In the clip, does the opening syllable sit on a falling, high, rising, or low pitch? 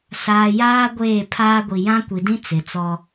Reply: low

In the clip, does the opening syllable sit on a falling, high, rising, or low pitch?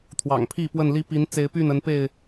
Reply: low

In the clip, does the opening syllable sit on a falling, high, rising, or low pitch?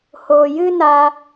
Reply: low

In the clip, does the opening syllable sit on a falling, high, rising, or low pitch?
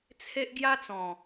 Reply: high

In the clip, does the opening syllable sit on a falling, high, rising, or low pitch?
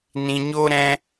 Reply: low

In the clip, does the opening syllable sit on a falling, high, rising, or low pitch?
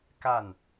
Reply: falling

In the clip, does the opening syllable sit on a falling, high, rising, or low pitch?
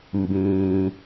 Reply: low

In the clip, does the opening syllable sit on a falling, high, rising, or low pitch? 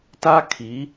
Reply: high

